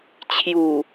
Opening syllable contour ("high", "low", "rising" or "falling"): low